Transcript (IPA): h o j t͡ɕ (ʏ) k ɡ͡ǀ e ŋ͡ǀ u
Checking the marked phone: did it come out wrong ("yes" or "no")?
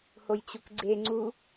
yes